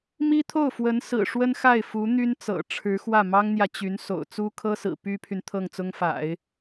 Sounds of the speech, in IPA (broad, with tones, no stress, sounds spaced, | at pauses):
m i˥ t̪ʰ o˥˩ ʊ̯ f w ə˧˥ n s ɹ̩˨˩ ʂ w ə˥ n x a˥˩ ɪ̯ f u˧˥ n̪ y˥ n t͡s ɤ̰˨˩ ʈ͡ʂʰ ɻ̩˧˥ x w ä˥˩ m ɑ˥ ŋ n̪ j ä˨ t͡ɕ y˧˥ n s o̰˨˩ ʊ̯ t͡s u˥ kʰ ɤ˥ s ɹ̩˨˩ p y˥ pʰ y˨ n t̪ʰ ɤ˥˩ ŋ t͡s ʊ˥ ŋ f a̰˨˩˦ ɪ̯